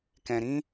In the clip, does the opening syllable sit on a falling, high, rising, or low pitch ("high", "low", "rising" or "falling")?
low